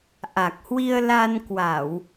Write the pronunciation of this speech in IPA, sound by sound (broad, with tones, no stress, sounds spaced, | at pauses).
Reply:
ʔ a˨˩ k̚ h w i˧ ə̯ l a˧ n k w a˧˩˨ w